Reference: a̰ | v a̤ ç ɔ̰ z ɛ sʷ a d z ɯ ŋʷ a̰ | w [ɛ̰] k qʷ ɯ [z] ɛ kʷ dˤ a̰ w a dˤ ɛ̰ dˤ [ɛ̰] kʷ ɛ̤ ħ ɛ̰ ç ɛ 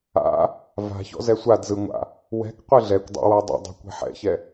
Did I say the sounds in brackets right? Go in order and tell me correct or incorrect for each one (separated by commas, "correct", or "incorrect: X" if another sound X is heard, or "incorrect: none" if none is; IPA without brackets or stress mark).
incorrect: ɛ̤, incorrect: ɮ, incorrect: ɛ̤